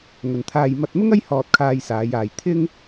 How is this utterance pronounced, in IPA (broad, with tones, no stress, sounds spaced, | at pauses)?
ŋ ɵ˨ n t̪ʰ aː˧ j m ɐ˧ t̚ m ʊ˥ ŋ ɐ˥ j h ɔː˧ t̚ kʰ aː˧ j s aː˨˧ j aː˨ j t̪ʰ ɪ˥ ŋ